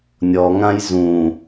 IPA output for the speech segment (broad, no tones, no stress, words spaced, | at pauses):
nʲɔŋãj zũ